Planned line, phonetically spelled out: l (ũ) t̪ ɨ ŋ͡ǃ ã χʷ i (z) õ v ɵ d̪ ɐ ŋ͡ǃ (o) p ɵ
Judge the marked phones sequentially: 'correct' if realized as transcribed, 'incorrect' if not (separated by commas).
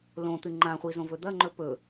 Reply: incorrect, correct, incorrect